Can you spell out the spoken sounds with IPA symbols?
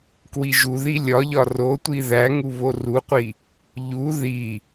k w i ʒ u ð i lʲ ɒ ʎ ɒ r o tʷ i ð æ ŋ u β o r u qʷ i | ʎ u ð i

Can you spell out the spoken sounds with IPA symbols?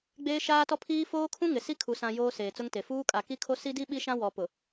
ɡ͡b eː˦ ʃ aː˦ t ɔ˦ pʰ iː˦ f oː˦ kʰ ũ˦ ŋ ɪ˨ s i˦ kʰ u˨ s ã˨ j oː˦ s eː˨ t͡s ʊ˦ ŋ t e˨ f uː˦ kʼ a˨ k i˦ kʰ o˦ s i˦ d i˦ ɓ i˦ ʃ ã˦ w ɔ˨ p ʊ˨

